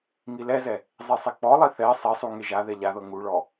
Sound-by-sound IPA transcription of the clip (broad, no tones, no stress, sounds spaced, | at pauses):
ŋ i l ɛ z ɛ | zˤ i sˤ e k͡p ɔ lˠ i θ ɛ sˤ ɛ sˤ u ŋ e ʒ a ð ɛ ʎ a ð ɤ ŋ u ɭ ɔ